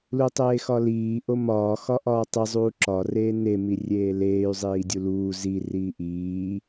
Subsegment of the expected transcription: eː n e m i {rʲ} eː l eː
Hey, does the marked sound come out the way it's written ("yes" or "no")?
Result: yes